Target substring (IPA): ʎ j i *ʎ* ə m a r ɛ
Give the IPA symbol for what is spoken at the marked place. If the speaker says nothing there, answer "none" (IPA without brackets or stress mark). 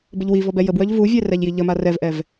ʎ